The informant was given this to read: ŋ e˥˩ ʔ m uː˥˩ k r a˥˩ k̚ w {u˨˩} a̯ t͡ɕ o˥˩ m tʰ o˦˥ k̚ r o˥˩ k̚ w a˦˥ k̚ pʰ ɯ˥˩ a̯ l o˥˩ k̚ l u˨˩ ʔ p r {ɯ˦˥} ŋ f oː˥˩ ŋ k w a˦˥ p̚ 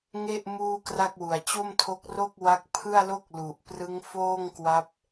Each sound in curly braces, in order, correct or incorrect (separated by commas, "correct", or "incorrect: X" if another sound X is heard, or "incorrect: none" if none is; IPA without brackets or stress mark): correct, correct